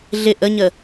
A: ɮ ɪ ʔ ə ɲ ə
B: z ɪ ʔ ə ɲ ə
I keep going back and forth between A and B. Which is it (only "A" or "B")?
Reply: A